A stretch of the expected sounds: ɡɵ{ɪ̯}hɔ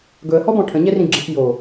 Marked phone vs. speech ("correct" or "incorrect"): incorrect